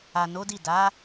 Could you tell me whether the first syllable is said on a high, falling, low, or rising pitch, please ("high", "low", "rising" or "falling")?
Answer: low